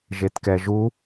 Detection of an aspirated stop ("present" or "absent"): absent